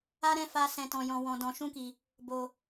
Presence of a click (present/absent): absent